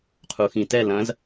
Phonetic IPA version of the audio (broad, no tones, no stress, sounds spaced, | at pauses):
qʰ u x ĩ t ɛ l ɐ̃ z